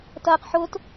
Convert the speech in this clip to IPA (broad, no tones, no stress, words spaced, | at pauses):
tɐːqħʊt